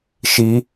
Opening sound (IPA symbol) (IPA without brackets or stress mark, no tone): ʃ